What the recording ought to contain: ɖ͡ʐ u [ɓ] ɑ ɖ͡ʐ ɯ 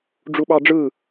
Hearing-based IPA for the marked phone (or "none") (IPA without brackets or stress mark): ɓ